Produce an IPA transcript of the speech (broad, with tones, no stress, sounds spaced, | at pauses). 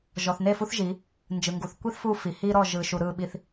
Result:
ʒ ɔ˨ θ n e˦˨ f u˦ θ ʒ i˨˦ | n d͡ʒ ɯ˨ ŋ ɡ u˨ θ kʷ i˦ θ f u˦ f i˨ h i˦ ɾ ɔ˦˨ ʒ ɯ˨ ʃ u˨ ɾ ɯ˦˨ ɓ i˦ θ